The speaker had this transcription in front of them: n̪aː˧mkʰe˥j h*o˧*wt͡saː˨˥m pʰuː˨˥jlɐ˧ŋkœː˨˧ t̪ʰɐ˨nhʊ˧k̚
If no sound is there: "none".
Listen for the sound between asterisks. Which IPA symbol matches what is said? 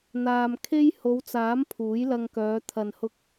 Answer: o˨˧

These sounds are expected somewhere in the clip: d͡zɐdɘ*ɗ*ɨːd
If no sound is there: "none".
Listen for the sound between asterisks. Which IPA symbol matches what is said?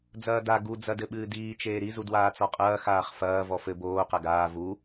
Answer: ɓ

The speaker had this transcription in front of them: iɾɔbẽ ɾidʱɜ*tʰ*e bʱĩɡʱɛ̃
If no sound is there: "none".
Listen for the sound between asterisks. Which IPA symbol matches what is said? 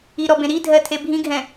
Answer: tʰ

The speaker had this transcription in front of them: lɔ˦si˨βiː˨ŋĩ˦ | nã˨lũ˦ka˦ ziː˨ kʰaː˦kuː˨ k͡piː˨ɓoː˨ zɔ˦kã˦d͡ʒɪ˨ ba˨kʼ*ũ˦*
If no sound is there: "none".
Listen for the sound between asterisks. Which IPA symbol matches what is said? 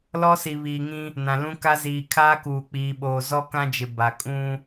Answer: ũ˦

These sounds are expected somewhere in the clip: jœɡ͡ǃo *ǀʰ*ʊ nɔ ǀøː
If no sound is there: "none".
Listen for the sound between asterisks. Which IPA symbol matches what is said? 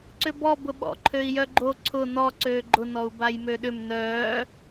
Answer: ǀʰ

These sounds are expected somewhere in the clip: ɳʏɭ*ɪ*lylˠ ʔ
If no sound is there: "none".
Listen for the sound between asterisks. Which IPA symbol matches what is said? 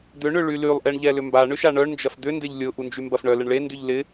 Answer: y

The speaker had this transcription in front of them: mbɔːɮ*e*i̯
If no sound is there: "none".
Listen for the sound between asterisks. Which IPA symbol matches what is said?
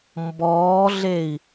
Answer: e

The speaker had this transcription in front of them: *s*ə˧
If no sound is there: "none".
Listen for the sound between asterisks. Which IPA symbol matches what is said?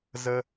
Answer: z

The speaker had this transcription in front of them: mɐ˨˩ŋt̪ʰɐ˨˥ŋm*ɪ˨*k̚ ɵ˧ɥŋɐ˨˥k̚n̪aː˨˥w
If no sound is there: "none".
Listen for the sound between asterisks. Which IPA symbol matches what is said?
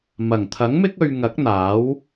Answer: ɪ˥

